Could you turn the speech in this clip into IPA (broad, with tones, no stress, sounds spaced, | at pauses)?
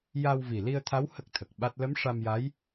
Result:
j a˧ w v i˨˩ l i˧ ə̯ t̪ʰ a˧˥ w h ə˦˥ k̚ t̪ʰ ə˨˩ k̚ ɓ a˦˥ t̚ l ə˧˥ m ʂ a˧ m j a˧˥ j